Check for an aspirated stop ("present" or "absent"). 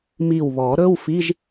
absent